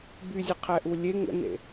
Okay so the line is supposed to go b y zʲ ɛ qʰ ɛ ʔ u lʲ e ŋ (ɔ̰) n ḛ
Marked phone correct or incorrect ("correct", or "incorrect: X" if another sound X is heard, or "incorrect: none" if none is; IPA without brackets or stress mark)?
incorrect: ə̰